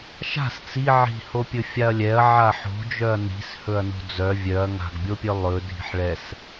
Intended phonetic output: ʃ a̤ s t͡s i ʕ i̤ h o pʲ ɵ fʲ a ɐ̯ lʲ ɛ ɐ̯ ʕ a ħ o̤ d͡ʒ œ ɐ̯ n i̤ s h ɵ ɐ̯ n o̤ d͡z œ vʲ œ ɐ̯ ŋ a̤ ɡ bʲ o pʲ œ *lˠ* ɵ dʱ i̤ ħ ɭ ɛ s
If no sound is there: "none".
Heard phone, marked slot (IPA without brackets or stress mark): lˠ